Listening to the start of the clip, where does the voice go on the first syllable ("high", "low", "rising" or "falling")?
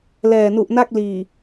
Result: low